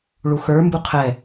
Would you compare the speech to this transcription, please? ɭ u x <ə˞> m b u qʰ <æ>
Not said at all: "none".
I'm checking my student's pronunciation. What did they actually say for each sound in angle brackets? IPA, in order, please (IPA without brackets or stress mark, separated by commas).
ə˞, ɛ